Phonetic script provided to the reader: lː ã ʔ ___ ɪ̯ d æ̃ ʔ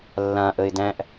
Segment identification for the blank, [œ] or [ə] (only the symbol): ə